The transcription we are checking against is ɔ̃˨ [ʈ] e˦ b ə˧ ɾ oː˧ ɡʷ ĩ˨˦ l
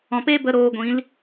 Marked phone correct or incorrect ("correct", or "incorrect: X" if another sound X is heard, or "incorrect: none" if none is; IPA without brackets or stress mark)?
incorrect: p